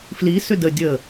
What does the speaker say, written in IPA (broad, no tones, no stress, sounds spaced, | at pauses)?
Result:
f l i s ʏ d ə dʲ ə